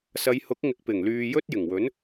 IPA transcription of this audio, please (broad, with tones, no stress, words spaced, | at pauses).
sɐ˨˧jhʊ˨˥k̚ ŋɪ˨k̚pɪ˨˩ŋlyː˨ jɵ˥t̚ jɪ˨˩ŋwɵ˨˥n